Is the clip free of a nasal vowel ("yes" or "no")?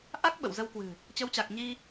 yes